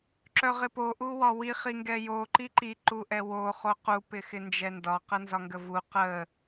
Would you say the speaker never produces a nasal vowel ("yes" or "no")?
yes